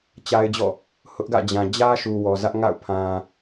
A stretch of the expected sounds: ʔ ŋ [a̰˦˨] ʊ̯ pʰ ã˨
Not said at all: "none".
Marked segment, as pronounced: a̰˦˨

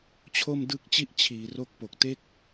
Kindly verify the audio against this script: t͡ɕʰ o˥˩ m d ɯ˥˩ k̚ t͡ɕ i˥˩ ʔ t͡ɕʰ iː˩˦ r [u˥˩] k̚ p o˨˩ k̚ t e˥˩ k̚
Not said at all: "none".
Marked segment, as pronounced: o˥˩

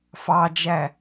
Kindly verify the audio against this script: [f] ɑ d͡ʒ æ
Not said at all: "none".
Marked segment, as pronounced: f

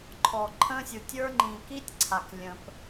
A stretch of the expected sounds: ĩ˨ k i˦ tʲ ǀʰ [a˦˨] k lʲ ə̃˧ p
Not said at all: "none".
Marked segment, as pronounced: a˨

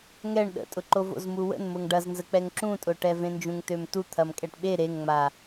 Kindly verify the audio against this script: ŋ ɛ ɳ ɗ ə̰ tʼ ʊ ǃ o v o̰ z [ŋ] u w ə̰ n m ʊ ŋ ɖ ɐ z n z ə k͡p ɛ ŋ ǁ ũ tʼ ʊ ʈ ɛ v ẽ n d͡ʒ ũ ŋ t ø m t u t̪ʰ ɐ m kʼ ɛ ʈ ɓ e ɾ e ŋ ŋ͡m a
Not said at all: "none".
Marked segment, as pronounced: m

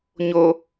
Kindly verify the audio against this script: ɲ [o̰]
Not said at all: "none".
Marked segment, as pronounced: o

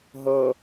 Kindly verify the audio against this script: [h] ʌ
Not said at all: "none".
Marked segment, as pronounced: ɦ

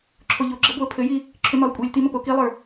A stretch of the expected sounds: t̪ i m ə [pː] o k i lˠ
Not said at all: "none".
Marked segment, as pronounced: p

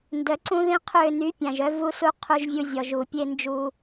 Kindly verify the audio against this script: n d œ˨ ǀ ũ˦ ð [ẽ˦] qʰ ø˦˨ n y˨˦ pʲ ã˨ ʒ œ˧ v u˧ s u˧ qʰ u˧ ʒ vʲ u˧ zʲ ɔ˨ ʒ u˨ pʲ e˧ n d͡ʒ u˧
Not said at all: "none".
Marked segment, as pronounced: ĩ˦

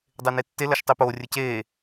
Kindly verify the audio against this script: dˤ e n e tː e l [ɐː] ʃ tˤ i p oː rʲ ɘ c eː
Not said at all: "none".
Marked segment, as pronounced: ɐ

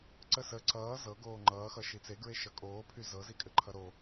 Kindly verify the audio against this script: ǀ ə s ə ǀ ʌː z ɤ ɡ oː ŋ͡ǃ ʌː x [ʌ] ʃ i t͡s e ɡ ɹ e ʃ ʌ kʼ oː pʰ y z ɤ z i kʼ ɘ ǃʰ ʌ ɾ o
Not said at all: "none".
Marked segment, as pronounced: ʌ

